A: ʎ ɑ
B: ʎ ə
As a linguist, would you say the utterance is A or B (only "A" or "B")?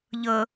B